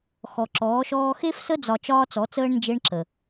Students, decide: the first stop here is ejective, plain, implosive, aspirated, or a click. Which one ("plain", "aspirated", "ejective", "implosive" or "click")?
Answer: click